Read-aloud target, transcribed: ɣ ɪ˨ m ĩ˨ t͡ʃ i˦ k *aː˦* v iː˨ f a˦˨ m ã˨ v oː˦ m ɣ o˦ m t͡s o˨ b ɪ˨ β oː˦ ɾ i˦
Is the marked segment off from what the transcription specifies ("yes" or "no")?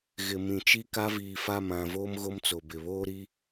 yes